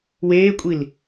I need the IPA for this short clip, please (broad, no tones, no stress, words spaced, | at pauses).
weːkʷʼil